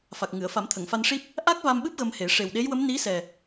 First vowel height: low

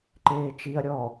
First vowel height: mid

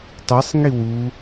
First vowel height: high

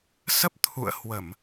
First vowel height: mid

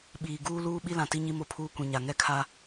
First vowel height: high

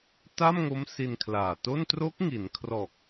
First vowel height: low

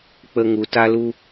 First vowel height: mid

